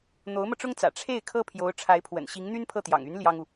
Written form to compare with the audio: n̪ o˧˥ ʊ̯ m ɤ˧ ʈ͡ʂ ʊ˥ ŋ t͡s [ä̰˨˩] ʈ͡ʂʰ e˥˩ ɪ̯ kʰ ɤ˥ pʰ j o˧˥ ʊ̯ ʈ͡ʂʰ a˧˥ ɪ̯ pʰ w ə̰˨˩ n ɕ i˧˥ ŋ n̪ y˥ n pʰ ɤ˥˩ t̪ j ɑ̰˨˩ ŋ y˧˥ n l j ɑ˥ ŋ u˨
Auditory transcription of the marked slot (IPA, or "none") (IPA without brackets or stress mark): ä̰˨˩